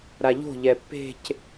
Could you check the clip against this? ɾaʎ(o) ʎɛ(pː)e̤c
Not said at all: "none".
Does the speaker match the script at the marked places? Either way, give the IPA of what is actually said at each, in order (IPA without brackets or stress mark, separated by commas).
o̤, pː